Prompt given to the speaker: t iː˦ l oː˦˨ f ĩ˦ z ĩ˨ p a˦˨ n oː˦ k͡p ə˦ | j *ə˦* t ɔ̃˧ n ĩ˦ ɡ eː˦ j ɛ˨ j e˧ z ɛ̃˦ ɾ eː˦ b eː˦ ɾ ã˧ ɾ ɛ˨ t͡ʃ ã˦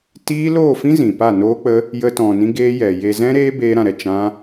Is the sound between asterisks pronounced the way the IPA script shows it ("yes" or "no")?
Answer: yes